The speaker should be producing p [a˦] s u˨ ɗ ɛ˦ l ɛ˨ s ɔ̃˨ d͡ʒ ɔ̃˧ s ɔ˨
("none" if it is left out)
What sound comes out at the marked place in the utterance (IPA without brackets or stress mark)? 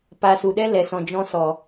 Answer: a˨